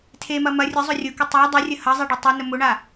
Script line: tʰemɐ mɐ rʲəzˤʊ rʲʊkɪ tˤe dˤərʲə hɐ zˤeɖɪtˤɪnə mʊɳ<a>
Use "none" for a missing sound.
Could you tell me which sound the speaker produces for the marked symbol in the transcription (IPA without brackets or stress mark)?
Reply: a